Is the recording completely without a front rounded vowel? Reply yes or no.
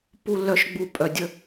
no